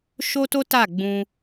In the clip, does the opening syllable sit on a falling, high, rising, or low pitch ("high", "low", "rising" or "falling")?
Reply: high